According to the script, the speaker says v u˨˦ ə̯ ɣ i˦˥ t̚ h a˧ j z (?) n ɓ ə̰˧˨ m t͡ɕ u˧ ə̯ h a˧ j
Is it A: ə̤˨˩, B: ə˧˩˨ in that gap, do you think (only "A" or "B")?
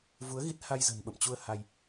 A